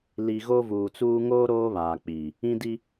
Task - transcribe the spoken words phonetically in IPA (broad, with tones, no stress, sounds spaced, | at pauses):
l i˨ ɣ o˦ v uː˨ t͡s uː˦ ŋ oː˦ ɾ oː˦ β aː˨ k͡p i˨ | ĩ˦ d i˦